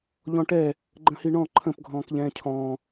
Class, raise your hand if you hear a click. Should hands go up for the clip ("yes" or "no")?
yes